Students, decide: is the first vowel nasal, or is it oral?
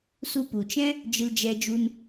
oral